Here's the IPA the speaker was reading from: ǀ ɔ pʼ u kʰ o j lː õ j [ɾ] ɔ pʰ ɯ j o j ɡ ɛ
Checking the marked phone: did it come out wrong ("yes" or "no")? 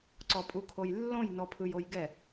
yes